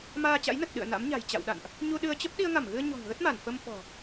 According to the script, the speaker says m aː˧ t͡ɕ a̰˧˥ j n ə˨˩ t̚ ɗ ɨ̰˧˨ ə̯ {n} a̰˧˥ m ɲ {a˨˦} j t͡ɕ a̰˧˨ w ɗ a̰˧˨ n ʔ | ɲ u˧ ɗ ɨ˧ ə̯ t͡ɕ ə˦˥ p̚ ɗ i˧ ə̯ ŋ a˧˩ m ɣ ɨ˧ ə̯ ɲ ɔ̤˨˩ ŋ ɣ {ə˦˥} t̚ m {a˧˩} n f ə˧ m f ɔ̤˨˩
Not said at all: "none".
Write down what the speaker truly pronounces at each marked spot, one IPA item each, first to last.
n, a̤˨˩, ə˦˥, a˧˩

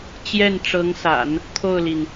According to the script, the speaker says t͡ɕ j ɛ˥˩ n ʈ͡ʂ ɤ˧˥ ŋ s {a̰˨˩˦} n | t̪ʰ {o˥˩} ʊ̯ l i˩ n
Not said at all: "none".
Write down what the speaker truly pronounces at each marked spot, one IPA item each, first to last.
a̰˨˩˦, o˥˩

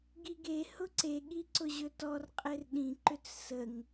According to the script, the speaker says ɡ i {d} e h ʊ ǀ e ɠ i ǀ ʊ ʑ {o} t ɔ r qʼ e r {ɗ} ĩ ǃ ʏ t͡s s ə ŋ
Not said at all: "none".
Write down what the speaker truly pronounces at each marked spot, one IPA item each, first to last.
ɡ, ɵ, ɗ

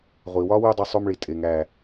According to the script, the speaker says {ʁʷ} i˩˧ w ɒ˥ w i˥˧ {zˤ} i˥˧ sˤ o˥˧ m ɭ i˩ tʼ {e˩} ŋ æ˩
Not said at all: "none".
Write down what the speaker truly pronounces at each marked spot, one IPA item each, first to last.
ʁʷ, dˤ, e˩

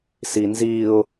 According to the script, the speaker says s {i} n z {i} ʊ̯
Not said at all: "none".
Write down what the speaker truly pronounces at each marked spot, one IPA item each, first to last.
i, i

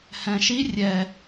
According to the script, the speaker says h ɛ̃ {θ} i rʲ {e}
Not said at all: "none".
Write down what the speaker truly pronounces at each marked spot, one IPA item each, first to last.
ʃ, ɛ

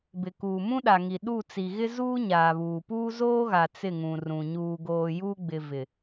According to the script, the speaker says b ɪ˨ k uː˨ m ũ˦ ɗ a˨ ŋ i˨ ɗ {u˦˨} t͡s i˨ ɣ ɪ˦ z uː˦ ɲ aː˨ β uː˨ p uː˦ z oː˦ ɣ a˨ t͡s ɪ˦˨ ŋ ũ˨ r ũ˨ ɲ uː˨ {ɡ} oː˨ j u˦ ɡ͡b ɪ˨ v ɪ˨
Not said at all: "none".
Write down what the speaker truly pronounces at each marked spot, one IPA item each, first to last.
u˦˨, ɡ

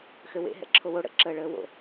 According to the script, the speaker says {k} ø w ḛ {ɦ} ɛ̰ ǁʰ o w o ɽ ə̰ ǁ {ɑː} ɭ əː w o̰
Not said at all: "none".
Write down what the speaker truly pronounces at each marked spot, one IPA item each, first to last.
x, ɦ, əː

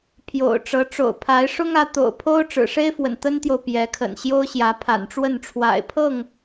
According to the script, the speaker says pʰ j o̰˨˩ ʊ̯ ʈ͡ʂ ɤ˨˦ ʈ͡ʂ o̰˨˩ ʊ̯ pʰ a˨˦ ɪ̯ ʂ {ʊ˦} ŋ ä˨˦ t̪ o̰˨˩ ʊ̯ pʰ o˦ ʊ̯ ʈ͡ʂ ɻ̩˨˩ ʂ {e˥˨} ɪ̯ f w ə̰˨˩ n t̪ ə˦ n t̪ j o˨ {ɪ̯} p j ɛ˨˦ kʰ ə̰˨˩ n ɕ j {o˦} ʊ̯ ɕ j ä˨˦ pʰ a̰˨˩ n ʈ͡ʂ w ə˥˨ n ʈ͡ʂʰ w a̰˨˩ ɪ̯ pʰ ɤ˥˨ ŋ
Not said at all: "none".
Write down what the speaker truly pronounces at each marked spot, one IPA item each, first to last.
ʊ˦, e˦, ʊ̯, o˦

